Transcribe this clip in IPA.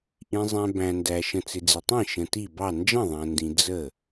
ʔ ĩ˨ zˤ æ̃˨ b æ̃˨ n d æ˨ ʃ ə̃˨ t͡s ɪ˨ d͡z ɪ˨ tˤ ĩ˥˩ ʃ ə̃˨ t i˥˩ b ɑ˥˩ n d͡ʒ ə̃˥˩ ðˤ æ̃˨ n d ĩ˨ d͡z ə˥˩

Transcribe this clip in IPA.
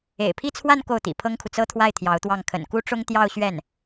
ḛ˨˩ ɪ̯ pʰ i˥˧ t͡sʰ w a˥˧ n k o˥˩ ʊ̯ t̪ ḭ˨˩ pʰ ɤ˥ ŋ kʰ u˨ t͡s ɤ˥ t̪ʰ w a˥˩ ɪ̯ t̪ʰ j ɑ˧˥ ʊ̯ t̪ w ɑ˥˩ ŋ kʰ ə̰˨˩ n k u˥ ʈ͡ʂ ʊ˥ ŋ t̪ j ɑ˥˧ ʊ̯ ɕ ɥ ɛ˥˩ n

